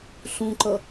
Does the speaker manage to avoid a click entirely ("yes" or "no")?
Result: no